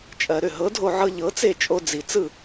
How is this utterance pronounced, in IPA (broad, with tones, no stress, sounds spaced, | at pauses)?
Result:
t͡ʃʼ ɜ˩ ɾ ʏ˥˩ ɦ ɤ˩˥ dʱ o˧ ʕ ɤ˧ ʎ ɤ˩˥ t͡s e˥˩ t͡ʃʼ o˧ d͡z i˩ t͡s ɯ˥˩